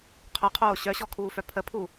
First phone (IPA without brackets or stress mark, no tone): qʰ